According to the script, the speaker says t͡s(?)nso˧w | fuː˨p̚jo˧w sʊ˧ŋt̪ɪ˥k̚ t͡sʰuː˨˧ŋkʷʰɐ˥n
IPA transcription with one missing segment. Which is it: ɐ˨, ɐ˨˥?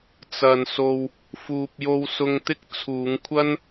ɐ˨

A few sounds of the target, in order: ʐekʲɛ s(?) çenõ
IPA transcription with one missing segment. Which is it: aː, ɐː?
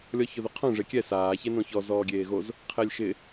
aː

